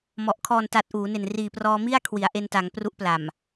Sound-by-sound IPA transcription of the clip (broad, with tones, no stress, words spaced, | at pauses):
mɔ˨˩ʔ kʰɔː˨˩nta˨˩t̚ ʔuː˩˦ne˨˩n riː˨˩prɔː˧ mi˥˩a̯kʰwi˩˦a̯ ʔe˧nta˩˦ŋ pru˦˥ʔpla˨˩m